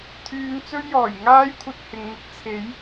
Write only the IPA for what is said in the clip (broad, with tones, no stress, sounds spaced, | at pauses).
t̪ʰ yː˥ n t͡s ɵ˥ ɥ j ɔː˨˩ j ŋ aː˥ j kʷʰ ɐ˧ t̚ h ɪ˨˧ ŋ m ɪ˨˥ k̚ t͡sʰ e˨˥ j